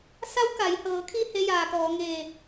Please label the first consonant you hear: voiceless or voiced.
voiceless